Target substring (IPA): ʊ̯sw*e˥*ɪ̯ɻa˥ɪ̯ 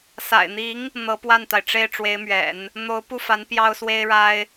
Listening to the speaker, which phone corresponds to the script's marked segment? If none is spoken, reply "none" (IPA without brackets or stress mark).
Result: e˥